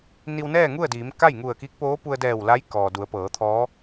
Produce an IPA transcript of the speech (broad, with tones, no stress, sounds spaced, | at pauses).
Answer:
n i˧ w n ɛː˥˨ ŋ u˥˨ ə̯ d iː˩˧ m k a˥˨ j ŋ u˧˩ ə̯ k i˧˥ k̚ p oː˧˥ p u˧ ə̯ d ɛː˧˩ w l a˧˥ j k ɔː˩ d u˩˧ ə̯ p ɤː˩˧ t̪ʰ ɔː˧˥